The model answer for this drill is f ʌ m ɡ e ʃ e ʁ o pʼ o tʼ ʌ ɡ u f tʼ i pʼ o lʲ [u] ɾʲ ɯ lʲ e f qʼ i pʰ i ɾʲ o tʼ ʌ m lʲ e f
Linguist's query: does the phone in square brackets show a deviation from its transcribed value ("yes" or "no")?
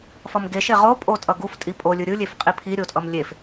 yes